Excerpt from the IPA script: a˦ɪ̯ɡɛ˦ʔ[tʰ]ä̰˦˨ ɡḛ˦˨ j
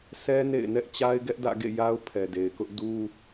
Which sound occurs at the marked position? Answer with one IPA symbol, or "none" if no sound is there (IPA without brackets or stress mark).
d